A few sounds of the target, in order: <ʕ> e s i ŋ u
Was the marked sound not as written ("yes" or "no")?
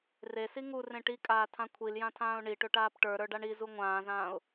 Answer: yes